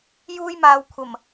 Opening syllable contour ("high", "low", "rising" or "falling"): high